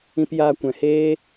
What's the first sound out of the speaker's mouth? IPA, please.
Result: ĩ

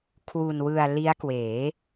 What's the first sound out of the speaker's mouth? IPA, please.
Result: kʰ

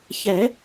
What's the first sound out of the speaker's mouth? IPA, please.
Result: ç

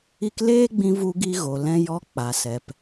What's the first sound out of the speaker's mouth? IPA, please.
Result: i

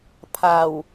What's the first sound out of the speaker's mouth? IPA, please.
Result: pʰ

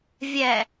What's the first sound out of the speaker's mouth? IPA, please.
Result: vʲ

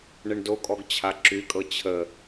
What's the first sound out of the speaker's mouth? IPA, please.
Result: ɳ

